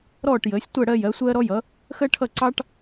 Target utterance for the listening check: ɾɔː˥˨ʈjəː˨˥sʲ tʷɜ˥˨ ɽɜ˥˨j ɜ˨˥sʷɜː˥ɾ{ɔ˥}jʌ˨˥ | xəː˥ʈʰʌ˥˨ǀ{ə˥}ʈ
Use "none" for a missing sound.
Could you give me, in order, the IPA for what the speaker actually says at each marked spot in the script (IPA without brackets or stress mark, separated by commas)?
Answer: ɔ˥, ɑ˥